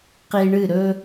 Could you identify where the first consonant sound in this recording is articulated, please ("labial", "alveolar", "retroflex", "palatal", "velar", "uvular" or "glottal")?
uvular